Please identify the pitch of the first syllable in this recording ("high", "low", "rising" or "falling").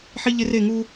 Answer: high